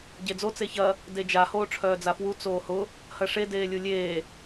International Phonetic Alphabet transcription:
ɟ e d͡z o t͡s e ç ɐ | d e d͡ʒ a h oː ʈ͡ʂʰ œː d͡z a f w u t͡s oː h ʊ | h ɐ ʂ e d eː lʲ u lʲ eː

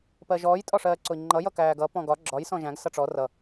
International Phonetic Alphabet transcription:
p ɜ ʒ ɔː j tʼ ɒ ʂ ɜː ǀ ʊ i̯ ŋ͡ǃ ʌ j ʌ k æː ɡ ʌ p ɔ̃ ɡ ɒ ɡ͡ǁ ɒ j s ɔ̃ ʒ æ̃ ɡ s ʌ ʈ͡ʂ ɔ r ʌ

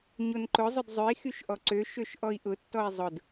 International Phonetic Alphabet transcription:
ɲ o n ǃ ʊ zˤ ʊ d zˤ ø i̯ x y ʃ ʔ ɔ ǀ ø ʃ ø ʃ ʔ ɔ i̯ ʔ ʊ tː ɔ i̯ zˤ ʊ d

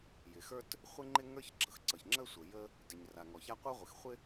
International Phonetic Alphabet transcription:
j ɪ˩ x ə˞˥ t | χʷ ɪ˦ ŋ͡ǃ ɪ˦ ŋ ə˞˦ ç ɡ͡ǁ ʌ˩ x ǀ ʌ˩ ç ŋ͡ǁ ə˥ sʷ ə˩ j ə˦ | d ɪ˩ ɲ r a˩ ŋ ɔ˩ ç a˦ qʷ ə˞˥ ʁʷ ɪ˩ x χʷ ɪ˦

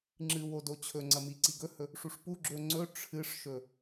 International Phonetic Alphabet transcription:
ŋ͡ǁ ɨ w o d o t͡ɕʰ ɵ ŋ͡ǀ ɐ m i ǀ i ɡ ɵ h ɵ | ʂ u ʂ p u ɡ͡ǁ ɵ ŋ͡ǀ ɵ ʈ͡ʂʰ ɨ ʂ ʃ ɵ

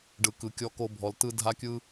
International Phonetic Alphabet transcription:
ɖ ɯ˨ k ɯ˨ kʲ ɔ˧ k o˧ bʱ ɔ˨ l t ɯ˧ dʱ a˦ kʲ ɯ˦

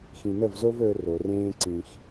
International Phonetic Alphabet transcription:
x ĩ˧ n ə˦˨ v z o˦ v ɵː˧ r o˨ r ẽː˦ ǀ ĩ˨ x

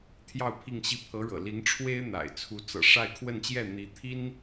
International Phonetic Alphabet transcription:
t̪ʰ j ɑ˥˧ ʊ̯ pʰ i˥˧ ŋ ɕ i˥˩ pʰ ɤ˧˥ ɻ ɤ̰˨˩ l i˧˥ ŋ ʈ͡ʂʰ w e˥ ɪ̯ n̪ a̰˨˩ ɪ̯ t͡sʰ u˧˥ t͡s ɤ̰˨˩ ʂ a˥˧ ɪ̯ kʰ w ə˥˧ n t͡ɕ j ɛ˥˩ n̪ i˧˥ t̪ʰ i˥ n

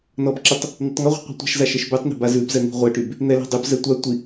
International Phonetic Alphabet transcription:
n ɔ b ǁ ɛ tˤ | n̪ o tˤ ŋ ɔ ʁʷ i̤ qʷ i̤ tʷ a̤ ʃ z a ʃ ɛ ʃ b ʉ tˤ n i̤ b a z ʉ b z ɛ n̪ i̤ ʁʷ ɛ ʈ y b | n̪ ɛ l a̤ dˤ ʉ b z ɛ tʷ a tʷ i

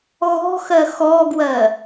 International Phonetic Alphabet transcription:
ɣ ɔ̤ x ɜ x ɔ ɡ w ɜ

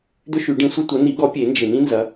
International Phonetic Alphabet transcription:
d̪ ʏ˥ ʃ y˨˩˦ ɖ ĩ˨˦ sʷ ɪ˥ tʷ ɐ˨˦ n̪ i˨˩˦ ɡ ɔ˨˩˦ pʲ e˨˩˦ n d͡ʒ ɪ˨˩ n̪ ĩ˥ n z ɐ˨˦

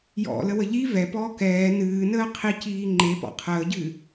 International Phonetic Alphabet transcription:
j ɔ̰ l ə w ə ʎ i v ɛ p ɔː k ɛː n ɨː n əː qʰ i c iː ŋ͡ǃ e p ɔ̰ qʰ əː ɟ ɨː

